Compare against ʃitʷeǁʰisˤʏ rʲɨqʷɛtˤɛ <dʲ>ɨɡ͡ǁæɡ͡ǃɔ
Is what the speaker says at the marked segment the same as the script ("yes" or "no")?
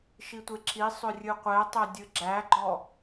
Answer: yes